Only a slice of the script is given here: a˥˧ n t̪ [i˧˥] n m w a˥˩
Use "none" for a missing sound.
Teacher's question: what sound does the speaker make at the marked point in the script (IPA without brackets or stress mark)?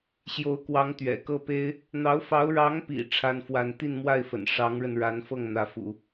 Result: i˥˧